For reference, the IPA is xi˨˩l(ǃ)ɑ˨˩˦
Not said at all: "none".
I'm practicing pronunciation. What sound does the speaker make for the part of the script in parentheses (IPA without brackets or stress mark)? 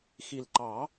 ǃ